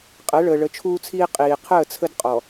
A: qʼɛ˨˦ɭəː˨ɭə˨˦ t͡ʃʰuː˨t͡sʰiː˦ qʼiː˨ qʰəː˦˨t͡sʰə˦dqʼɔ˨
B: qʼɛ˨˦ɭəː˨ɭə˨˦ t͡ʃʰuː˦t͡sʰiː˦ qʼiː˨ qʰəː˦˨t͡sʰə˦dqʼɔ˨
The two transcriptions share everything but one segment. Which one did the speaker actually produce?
B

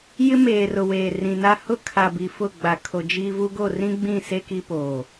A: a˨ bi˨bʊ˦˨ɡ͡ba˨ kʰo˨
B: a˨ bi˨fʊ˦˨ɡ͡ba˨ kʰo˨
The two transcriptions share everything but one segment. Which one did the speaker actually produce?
B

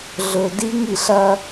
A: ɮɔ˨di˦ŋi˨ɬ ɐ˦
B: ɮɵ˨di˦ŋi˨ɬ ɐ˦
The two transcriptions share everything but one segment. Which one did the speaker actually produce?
B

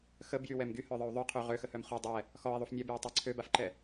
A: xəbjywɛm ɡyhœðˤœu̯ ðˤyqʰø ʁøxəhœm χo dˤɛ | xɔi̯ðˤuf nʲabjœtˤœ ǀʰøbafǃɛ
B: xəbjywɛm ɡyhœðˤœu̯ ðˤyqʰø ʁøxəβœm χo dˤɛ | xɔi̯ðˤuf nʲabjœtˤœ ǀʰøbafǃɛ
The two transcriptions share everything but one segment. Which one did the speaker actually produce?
A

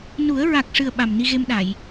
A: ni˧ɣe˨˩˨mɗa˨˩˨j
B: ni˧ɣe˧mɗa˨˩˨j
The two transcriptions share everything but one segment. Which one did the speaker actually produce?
B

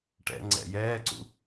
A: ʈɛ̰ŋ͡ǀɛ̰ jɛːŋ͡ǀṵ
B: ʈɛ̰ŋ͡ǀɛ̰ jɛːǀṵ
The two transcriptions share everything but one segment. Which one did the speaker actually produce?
B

